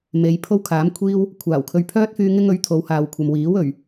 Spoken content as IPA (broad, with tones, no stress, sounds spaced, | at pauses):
m e˨˧ j pʰ o˥ w kʰ aː˨˥ m kʷʰ iː˥ w | kʷʰ aː˨˩ w kʰ ɵ˧ ɥ pʰ œː˥ t̚ f yː˧ ŋ ɪ˥ ŋ ɵ˨˥ ɥ t̪ʰ o˨˧ w h aː˨ w kʷʰ ɐ˨ m w iː˨˥ w ɵ˨˩ ɥ